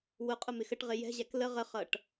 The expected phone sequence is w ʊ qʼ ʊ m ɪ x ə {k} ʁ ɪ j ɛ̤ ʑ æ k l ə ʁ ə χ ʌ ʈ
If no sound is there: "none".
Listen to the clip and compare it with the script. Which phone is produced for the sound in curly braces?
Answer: ʈ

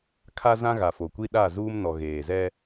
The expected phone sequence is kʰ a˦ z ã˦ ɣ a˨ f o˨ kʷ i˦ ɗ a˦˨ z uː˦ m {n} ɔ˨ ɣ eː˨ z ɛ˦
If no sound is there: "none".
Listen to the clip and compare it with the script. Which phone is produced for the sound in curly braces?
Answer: n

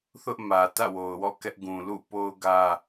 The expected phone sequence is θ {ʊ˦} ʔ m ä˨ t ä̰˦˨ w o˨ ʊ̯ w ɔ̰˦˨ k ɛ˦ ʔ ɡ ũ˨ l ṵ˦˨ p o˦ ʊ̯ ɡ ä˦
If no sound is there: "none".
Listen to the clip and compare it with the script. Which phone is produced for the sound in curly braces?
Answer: ʊ˦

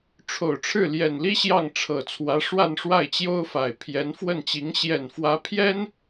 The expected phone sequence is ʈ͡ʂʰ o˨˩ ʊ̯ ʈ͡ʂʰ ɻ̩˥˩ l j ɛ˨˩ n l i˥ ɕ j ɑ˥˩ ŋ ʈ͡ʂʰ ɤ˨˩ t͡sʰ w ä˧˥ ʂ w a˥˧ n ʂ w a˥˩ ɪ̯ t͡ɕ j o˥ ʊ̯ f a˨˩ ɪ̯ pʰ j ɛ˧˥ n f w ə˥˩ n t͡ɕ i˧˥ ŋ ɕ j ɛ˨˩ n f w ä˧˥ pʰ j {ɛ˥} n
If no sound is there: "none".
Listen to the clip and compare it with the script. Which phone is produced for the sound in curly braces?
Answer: ɛ˥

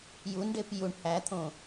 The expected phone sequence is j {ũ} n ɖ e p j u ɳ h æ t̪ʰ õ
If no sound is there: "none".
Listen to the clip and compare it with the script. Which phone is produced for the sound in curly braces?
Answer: u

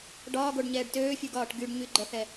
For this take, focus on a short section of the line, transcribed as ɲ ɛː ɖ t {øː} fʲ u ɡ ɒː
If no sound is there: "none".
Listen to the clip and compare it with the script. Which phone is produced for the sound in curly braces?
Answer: øː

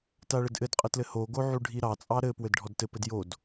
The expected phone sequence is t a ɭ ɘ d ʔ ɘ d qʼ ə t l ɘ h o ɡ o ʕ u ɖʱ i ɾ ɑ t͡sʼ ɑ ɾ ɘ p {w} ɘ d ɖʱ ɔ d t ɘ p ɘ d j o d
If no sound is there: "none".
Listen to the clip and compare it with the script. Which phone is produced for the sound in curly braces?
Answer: w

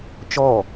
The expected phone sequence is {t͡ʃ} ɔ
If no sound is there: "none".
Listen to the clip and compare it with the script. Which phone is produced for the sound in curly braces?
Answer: t͡ʃ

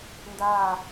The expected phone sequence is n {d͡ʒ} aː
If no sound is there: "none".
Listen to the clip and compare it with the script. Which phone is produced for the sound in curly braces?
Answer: d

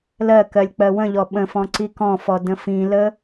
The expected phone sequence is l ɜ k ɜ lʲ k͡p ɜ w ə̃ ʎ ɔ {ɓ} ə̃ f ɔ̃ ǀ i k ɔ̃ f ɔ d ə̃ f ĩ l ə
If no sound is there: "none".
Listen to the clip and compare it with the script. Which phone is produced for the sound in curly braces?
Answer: ɓ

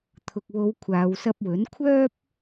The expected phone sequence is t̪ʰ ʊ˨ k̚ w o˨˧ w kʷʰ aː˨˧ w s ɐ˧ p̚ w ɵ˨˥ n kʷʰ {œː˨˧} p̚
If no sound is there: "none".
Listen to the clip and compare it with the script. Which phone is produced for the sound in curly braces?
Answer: œː˥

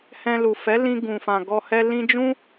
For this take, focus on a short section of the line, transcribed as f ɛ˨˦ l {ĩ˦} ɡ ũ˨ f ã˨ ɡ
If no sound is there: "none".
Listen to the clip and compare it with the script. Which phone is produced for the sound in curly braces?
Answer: ĩ˧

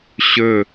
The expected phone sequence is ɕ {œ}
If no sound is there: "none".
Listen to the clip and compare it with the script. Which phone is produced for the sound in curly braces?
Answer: ɵ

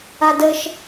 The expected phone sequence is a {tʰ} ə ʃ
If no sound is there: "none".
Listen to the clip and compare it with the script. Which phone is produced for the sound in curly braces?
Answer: d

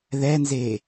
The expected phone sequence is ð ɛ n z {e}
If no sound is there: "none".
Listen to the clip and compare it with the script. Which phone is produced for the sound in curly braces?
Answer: e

